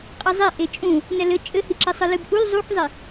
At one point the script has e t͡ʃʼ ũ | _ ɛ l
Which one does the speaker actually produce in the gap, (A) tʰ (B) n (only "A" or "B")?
B